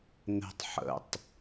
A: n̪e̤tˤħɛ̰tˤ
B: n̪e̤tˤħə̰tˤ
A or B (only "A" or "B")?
B